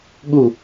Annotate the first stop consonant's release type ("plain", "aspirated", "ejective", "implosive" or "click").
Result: implosive